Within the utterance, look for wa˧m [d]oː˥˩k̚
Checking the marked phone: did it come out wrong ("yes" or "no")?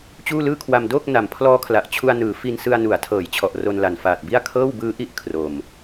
no